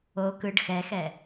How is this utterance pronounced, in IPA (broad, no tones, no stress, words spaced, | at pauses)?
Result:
o kɯɖ xɛxɛ